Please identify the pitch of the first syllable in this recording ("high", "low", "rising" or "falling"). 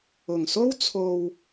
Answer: low